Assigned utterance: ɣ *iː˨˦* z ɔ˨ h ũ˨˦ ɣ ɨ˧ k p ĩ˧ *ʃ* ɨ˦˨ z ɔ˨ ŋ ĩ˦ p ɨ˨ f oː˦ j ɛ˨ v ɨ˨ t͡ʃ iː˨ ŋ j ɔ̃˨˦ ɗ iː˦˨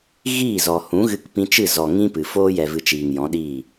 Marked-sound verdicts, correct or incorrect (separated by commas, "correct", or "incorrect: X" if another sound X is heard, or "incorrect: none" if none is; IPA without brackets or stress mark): incorrect: iː˦˨, incorrect: t͡ʃ